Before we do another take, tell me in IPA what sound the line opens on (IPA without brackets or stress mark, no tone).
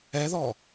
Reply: ɛ